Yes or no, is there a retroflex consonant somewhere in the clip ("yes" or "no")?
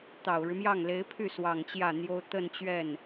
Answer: yes